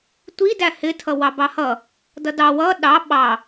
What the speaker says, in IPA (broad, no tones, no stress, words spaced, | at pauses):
tʷidæ hɪtʰʌ wɑbɑhʌ | dʌdɑ wʌ ɗɑ ɓɑ